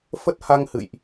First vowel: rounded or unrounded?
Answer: unrounded